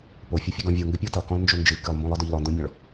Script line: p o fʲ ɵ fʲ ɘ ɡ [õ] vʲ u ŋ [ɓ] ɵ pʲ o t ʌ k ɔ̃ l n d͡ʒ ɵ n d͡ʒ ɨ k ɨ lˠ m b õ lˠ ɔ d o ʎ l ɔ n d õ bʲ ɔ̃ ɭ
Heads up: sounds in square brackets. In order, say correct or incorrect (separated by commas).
incorrect, incorrect